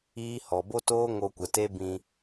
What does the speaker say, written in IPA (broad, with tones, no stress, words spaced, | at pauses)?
iː˦ hɔ˨bo˦toː˦ ŋo˧kʷə˨te˦ bĩ˧